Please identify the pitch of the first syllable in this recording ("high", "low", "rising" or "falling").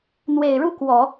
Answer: low